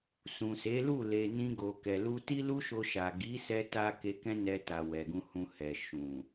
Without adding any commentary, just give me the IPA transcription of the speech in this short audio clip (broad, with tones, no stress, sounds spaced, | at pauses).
s ũ˨ s e˨˦ l u˦˨ l e˨ n ĩ˧ ɡ o˨ k ɛ˨ l u˧ t i˦ l u˦ ʃ o˧ ʃ a˨ ɡ i˨˦ s ɛ˧ t a˧ k e˧ k ɛ̃˦ n ɛ˧ t a˨ w ɛ˨ ɡ ũ˧ h ũ˧ h ɛ˨ ʃ ũ˨